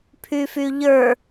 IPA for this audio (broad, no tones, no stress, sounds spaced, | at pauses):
pʰ y f y ʎ ə˞